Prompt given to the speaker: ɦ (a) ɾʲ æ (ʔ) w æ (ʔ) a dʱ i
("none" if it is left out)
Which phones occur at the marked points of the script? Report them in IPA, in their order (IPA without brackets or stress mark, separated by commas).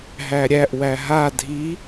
æ, ʔ, ɦ